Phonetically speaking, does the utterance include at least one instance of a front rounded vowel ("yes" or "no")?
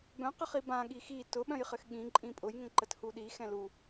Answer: yes